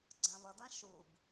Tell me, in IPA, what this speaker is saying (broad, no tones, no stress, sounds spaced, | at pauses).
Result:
ɡ͡ǀ ã β ʌ d ã ʃ u b